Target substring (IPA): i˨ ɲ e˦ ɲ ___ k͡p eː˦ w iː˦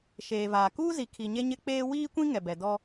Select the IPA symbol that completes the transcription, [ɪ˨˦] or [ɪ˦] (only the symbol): ɪ˦